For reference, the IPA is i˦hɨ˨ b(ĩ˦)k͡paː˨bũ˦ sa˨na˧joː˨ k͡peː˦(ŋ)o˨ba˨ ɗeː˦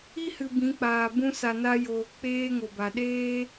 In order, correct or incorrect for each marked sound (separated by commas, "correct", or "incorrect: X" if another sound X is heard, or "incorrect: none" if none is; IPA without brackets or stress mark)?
incorrect: ĩ˨˦, correct